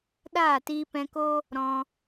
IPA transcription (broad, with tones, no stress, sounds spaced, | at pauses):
ɗ aː˦˨ t iː˧ p ɛ̃˧ k o˦ | ɾ ɔ̃˧